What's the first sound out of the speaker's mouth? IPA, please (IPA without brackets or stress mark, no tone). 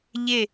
ʎ